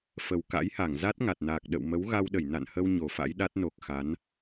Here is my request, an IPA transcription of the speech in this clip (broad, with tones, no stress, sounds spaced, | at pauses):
f ə˨˩ w k a̰˧˥ j h a˧˩ ŋ z a˦˥ t̚ ŋ a˨˩ t̚ n aː˨˩ k̚ ɗ ə̰˧˨ w m ə˨˦ w ɣ a˧ w ɗ ə˧˩ j n a̰˧˨ n h ə˧ w ɲ o˧˩ f a̰˧˥ j ɗ a˦˥ t̚ n o˨˩ k̚ x a˨˦ n